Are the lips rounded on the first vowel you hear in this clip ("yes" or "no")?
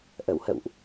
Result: no